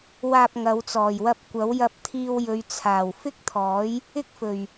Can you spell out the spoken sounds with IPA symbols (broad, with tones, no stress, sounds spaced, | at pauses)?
w aː˧ p̚ ŋ ɐ˨˧ w t͡s ɔː˨˩ j w ɐ˧ p̚ kʷ ɐ˨˥ w j ɐ˧ p̚ t̪ʰ iː˧ w j ɵ˨˧ ɥ t͡sʰ aː˨˩ w f ɪ˥ k̚ t̪ʰ ɔː˨˥ j | ɪ˥ k̚ f ɵ˨ ɥ